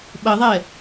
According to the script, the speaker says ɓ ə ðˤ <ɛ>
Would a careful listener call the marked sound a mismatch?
no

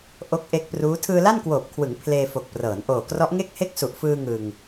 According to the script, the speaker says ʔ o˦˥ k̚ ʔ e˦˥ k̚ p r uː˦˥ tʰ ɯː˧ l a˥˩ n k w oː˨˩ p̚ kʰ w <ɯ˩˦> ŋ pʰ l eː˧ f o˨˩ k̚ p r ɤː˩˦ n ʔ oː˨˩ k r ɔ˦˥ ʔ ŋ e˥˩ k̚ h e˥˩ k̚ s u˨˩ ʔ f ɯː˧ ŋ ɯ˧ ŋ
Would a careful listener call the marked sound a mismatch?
no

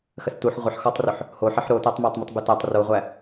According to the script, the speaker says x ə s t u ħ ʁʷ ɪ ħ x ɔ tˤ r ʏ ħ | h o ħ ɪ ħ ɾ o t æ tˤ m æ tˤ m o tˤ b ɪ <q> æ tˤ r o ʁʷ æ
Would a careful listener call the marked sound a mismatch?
yes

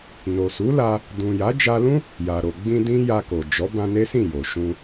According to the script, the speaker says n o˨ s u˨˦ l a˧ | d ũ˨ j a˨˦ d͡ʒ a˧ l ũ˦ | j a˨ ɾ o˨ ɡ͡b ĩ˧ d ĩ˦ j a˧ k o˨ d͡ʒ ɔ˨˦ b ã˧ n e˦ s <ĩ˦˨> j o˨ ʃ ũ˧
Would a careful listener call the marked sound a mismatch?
no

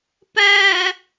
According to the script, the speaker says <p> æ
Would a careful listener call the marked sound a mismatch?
no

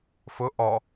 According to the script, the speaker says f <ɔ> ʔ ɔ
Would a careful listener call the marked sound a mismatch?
yes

